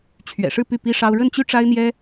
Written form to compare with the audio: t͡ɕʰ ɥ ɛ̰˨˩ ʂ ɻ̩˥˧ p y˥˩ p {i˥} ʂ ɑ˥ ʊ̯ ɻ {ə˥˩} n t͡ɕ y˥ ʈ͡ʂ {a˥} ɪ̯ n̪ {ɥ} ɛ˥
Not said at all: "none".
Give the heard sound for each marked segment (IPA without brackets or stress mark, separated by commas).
i˥, ə˥˩, a˥, j